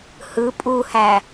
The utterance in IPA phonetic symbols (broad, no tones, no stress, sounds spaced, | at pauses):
h ɯ pʼ u h æ